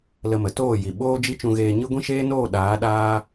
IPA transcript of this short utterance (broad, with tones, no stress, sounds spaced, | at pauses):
l ə˧ m ə˨ t oː˦˨ j i˨ ɓ oː˦ d͡ʒ i˦ t͡ʃ ũ˧ ɣ eː˧ ɲ ɨ˦ ɡʷ ĩ˦ ʃ eː˦ n oː˦˨ ɗ aː˨˦ ɗ aː˦